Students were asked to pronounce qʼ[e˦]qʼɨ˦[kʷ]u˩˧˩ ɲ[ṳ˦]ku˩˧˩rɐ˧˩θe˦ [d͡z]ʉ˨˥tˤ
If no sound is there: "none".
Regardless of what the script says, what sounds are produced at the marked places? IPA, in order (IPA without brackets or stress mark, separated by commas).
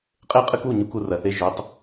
e˦, k, u˦, ʒ